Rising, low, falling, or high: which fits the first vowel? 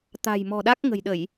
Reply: low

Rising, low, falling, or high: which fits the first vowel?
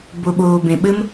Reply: low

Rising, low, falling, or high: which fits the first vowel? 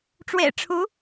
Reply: low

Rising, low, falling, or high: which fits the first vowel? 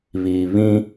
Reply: low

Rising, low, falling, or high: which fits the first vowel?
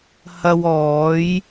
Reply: low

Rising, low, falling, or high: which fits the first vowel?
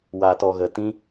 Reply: low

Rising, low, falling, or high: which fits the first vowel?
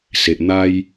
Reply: low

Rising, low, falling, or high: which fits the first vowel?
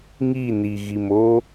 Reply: falling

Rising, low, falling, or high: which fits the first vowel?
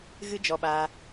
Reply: high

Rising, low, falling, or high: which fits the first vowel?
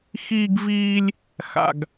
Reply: high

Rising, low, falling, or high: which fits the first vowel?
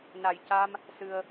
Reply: low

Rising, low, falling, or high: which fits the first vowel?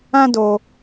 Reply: high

